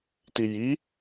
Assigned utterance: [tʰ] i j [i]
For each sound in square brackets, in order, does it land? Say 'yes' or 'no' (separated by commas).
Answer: no, yes